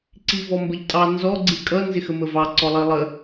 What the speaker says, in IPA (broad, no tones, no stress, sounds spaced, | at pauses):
ǀ i v ɔ m b ə ʎ tʼ ɑ n z ɔ ɡ͡ǀ i kʼ ʌ n z ɪ x ə m ə v ɑ ǀ ɔ lˠ i lˠ ə